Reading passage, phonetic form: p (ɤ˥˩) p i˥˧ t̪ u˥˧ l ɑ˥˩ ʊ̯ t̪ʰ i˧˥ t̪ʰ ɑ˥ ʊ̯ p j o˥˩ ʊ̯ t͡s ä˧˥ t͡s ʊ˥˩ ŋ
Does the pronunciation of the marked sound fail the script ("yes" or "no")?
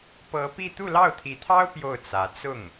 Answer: yes